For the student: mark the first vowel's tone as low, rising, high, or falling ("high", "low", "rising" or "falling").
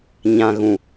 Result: low